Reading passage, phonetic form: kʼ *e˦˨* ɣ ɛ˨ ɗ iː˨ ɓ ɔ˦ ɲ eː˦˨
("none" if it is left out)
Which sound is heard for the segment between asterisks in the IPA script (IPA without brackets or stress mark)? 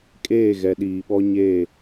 eː˦˨